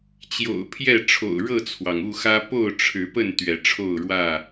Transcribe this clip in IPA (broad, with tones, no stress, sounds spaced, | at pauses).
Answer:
t͡ɕ j o̰˨˩ ʊ̯ pʰ j ɛ˥˨ ʈ͡ʂʰ o̰˨˩ ʊ̯ ɻ ɤ˥˨ t͡sʰ w ɑ˩ ŋ u˥˨ x ä˦ p o˥˨ ʊ̯ ʈ͡ʂʰ ɻ̩˨˦ p ə˥˨ n t̪ ɥ ɛ˨˦ ʈ͡ʂʰ o˥˨ ʊ̯ ɻ w ä˥˨